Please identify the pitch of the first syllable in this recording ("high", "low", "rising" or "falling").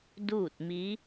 falling